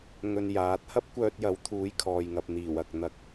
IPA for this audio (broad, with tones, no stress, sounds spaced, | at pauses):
ŋ ɵ˧ n j aː˨˥ t̚ h ɐ˥ p̚ kʷ œː˧ t̚ j ɐ˨˥ w t̪ʰ uː˨˥ j kʰ ɔː˨ j ŋ ɐ˨ p̚ n̪ iː˨˩ w ɐ˨ k̚ n̪ ɐ˨˥ k̚